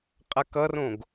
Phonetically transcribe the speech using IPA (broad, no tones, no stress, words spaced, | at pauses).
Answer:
qʼakʌrõɡ